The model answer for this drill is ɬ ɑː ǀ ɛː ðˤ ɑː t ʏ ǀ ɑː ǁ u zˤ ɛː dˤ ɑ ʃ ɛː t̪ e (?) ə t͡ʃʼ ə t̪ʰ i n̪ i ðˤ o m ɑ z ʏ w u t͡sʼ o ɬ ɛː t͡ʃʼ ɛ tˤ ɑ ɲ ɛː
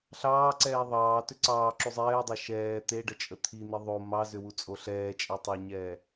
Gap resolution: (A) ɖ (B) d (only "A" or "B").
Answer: A